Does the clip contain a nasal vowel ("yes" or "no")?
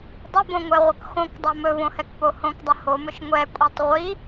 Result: yes